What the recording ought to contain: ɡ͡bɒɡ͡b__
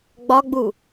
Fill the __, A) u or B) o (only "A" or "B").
A